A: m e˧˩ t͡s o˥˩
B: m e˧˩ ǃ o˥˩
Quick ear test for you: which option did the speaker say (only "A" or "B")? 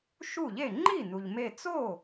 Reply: A